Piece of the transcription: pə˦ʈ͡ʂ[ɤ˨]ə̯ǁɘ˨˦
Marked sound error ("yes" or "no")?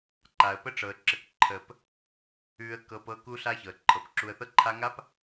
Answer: no